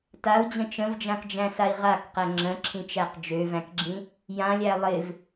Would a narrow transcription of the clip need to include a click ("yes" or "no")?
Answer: yes